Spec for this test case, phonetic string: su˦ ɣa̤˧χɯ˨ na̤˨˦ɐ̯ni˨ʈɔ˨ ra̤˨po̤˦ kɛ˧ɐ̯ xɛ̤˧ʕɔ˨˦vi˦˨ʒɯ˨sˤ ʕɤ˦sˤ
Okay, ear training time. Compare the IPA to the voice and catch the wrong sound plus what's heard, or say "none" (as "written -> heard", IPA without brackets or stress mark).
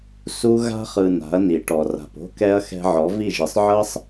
none